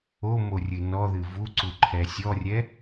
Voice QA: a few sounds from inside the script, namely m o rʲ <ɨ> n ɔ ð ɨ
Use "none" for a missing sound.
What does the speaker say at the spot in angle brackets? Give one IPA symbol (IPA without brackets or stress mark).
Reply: ɨ